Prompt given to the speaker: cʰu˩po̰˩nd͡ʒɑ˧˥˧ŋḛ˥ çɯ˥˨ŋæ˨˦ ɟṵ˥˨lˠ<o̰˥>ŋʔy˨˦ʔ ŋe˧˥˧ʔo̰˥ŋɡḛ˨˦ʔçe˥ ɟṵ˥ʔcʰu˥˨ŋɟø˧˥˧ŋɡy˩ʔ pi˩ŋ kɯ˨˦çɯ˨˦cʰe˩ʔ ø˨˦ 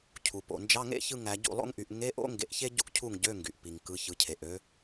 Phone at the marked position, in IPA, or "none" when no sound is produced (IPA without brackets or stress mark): o̰˥